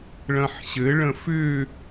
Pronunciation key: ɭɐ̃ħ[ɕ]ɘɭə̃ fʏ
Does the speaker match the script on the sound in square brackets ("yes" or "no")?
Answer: yes